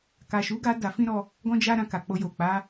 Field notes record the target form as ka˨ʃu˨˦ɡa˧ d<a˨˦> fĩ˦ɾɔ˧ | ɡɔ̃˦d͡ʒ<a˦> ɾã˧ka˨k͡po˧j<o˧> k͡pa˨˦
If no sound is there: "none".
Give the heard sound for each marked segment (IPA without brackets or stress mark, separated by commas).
a˧, a˦, o˨